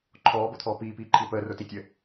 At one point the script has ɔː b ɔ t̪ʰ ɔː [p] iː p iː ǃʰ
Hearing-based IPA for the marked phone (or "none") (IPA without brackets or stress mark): p